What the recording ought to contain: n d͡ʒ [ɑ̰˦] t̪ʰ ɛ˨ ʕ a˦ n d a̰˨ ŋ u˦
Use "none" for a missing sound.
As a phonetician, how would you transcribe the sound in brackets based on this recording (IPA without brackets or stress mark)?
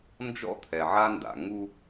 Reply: ɔ̰˦